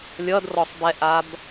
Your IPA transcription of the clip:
lʲ ʌ d r ɔ sˤ b ɛ ʔ a b

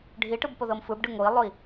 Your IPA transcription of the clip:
ɖʱ i ʈ ɯ b p o ð ɤ m f ɯ b ɖ ɯ ŋ o i̯ lˠ o i̯

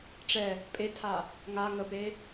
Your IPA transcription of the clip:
ʈ͡ʂ ɛ | pʼ e tʰ a | ŋ a ŋ ə p e

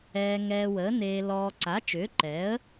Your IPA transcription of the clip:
ɛː˧ ŋ ɛː˧ w əː˨˥ n eː˧ l ɔː˧ ǀ a˨˥ t͡ʃ ʏː˨˥ ǃ ɛ˨˥ ə̯

